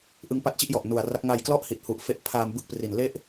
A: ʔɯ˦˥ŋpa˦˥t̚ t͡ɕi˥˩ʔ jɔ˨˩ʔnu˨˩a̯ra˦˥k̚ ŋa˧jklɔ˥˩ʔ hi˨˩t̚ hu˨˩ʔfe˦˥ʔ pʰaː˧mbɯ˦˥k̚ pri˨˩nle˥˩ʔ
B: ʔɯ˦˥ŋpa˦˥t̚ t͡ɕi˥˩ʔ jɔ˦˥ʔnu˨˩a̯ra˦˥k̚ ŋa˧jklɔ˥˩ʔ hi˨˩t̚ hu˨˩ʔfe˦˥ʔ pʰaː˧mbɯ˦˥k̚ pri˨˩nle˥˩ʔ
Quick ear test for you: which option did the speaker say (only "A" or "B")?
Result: A